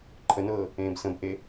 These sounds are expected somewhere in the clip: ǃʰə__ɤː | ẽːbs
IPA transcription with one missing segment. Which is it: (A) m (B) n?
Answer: B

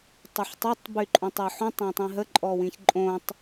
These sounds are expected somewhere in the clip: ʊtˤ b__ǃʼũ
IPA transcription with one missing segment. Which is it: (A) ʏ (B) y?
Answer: B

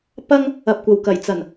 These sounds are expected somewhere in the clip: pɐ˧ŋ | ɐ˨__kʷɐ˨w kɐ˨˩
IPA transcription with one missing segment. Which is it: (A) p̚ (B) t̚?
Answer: A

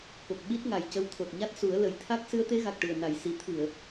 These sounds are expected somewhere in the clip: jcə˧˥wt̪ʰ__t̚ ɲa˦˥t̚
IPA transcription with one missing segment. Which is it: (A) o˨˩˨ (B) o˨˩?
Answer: B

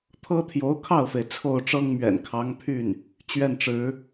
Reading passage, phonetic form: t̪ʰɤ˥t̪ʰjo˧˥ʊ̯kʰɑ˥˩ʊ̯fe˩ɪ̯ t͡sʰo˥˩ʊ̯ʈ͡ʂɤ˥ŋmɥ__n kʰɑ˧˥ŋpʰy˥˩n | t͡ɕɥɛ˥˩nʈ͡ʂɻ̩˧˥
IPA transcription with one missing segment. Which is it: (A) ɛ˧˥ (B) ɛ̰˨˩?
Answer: B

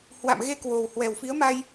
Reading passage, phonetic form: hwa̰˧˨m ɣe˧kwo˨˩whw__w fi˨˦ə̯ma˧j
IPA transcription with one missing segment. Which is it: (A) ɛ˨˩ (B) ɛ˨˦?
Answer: A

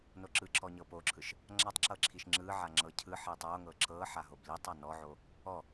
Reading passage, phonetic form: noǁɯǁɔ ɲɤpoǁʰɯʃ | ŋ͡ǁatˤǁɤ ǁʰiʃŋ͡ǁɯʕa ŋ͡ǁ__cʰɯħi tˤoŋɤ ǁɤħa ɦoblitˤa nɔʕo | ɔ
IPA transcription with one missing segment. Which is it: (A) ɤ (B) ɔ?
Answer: A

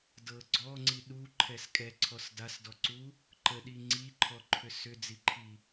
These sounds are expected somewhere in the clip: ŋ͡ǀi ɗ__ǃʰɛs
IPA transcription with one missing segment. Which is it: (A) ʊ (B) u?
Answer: B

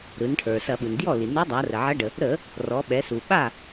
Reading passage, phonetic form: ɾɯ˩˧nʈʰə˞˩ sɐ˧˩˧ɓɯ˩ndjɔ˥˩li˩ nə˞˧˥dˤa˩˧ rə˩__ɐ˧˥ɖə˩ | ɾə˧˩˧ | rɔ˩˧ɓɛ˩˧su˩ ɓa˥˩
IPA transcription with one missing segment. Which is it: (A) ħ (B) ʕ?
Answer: B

